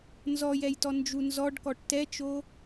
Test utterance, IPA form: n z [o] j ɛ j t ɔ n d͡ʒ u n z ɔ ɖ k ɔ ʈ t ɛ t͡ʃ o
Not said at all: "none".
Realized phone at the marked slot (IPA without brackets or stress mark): ɔ